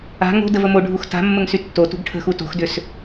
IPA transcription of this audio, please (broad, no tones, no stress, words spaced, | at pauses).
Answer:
a̤ ŋo̤dəv əmoɖʱux ta̤mːəŋ sytːotṳɡ ʈʰə̤xu to̤xdʏs